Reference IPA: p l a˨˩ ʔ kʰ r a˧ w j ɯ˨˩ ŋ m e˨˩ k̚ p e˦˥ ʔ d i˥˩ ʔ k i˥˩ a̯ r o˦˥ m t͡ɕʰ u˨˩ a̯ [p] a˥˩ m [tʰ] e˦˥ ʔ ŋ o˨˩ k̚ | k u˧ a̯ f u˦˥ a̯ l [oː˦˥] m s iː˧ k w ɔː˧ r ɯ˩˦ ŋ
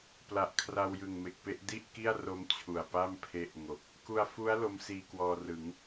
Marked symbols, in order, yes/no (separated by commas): yes, no, no